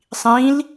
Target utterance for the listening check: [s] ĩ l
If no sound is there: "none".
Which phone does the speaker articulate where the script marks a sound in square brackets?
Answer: sˤ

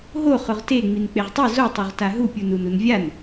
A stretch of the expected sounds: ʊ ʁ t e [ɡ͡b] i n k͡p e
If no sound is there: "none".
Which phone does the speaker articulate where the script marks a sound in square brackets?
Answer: ŋ͡m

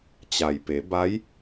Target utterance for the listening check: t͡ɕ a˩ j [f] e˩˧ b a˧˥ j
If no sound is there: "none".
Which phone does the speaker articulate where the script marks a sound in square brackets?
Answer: p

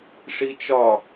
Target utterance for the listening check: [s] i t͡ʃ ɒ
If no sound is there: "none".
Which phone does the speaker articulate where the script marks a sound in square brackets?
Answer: ʂ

